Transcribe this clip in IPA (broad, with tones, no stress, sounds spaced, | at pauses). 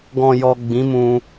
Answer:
ɡ ɔ̃˨ j ɔ˨ ɡ͡b ĩ˨˦ m ũ˧